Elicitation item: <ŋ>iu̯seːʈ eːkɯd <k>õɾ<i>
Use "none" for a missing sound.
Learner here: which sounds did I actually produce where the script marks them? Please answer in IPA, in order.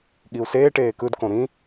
ɠ, k, ĩ

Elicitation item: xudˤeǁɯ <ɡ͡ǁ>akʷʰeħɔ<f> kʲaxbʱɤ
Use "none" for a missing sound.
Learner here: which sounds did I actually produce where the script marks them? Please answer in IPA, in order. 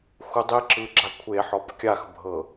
ɡ͡ǁ, p

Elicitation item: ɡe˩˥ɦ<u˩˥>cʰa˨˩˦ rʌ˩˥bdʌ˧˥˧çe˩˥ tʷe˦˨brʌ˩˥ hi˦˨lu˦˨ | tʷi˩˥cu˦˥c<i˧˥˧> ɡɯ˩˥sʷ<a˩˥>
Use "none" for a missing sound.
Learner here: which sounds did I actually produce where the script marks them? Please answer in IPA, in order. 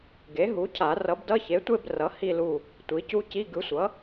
u˩˥, i˧˥˧, ʌ˩˥

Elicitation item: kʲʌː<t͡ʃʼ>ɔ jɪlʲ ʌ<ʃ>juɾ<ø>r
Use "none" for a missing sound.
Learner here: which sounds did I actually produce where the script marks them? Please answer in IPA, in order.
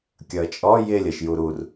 t͡ʃʼ, ʃ, u

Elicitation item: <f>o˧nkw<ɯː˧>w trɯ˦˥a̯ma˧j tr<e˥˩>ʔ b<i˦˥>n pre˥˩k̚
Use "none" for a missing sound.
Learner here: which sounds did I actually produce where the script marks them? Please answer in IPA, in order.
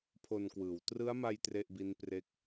pʰ, ɯː˩˦, e˥˩, i˦˥

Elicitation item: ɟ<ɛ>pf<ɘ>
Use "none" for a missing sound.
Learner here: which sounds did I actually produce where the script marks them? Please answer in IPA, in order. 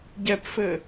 ɛ, ɘ

